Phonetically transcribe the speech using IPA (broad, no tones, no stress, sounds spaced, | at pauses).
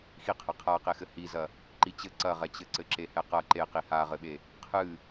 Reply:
x i qʰ ɐ qʰ a q e x ɘ h i z ɐ | ǃ i t͡ɕ ɘ ǀ ɐ ʁ ɛ t͡ɕ ɘ ǀ ɘ ǁ e h ɛ q ɐ ǃ e q i h a ʁ ɘ ɓ e | qʰ ɨ